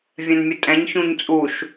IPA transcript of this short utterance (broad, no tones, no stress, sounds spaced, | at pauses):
vʲ ɛ̃ n mʲ ɘ tʼ ɛ̃ ɲ ç ũ ɲ t͡sʼ u ʃ